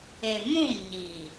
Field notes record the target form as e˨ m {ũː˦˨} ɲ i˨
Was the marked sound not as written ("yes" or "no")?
yes